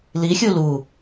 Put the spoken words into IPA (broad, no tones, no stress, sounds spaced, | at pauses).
l i xʲ u l u